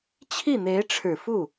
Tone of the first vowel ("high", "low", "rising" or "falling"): falling